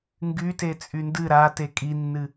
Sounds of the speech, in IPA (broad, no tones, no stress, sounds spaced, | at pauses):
ŋ ɡ y t e t͡sʼ y n d ɨ ɾ a t e kʼ i nː ɨ